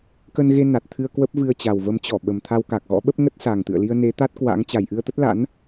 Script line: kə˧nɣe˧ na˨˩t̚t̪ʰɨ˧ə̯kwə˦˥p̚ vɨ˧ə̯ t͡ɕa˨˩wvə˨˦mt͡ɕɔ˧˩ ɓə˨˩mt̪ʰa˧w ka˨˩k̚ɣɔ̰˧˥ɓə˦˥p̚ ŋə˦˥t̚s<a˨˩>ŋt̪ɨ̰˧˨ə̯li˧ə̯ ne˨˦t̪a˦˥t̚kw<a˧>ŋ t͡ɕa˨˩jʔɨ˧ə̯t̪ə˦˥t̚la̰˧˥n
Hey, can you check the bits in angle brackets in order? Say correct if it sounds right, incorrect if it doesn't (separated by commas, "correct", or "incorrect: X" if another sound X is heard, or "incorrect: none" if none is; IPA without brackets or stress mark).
correct, incorrect: a̰˧˥